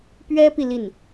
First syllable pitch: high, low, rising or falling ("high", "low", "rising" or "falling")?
high